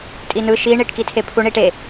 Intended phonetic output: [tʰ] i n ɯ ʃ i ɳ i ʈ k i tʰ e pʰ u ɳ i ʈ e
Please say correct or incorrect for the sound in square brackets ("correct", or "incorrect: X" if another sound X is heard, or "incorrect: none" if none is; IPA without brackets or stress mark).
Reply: incorrect: tʼ